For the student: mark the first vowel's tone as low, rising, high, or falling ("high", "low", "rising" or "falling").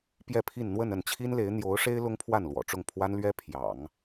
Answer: falling